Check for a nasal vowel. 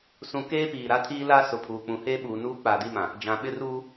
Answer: present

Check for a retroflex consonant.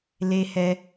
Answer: absent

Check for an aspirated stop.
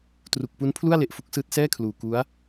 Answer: present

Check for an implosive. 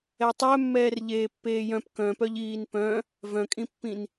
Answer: absent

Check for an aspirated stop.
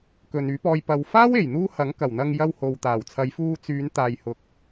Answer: present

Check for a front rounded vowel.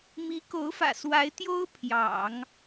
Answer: absent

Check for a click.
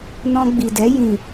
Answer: absent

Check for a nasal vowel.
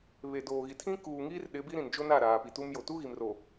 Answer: present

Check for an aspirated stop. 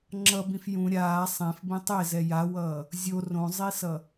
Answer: absent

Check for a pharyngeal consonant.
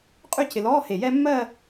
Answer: absent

